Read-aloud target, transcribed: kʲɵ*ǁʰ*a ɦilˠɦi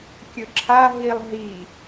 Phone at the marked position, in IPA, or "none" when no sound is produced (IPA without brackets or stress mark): ǁʰ